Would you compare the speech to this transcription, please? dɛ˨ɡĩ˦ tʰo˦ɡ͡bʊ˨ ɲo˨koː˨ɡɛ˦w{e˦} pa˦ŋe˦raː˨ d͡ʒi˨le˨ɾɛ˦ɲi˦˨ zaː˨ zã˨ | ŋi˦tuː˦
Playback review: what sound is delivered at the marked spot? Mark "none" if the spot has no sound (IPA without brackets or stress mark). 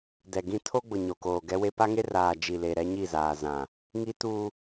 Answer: e˦